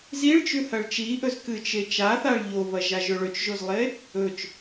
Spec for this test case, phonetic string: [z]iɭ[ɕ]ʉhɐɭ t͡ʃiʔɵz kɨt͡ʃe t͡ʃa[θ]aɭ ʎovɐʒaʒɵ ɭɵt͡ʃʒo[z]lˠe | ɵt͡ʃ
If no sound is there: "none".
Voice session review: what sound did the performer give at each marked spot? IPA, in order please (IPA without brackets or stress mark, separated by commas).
z, t͡ʃ, θ, z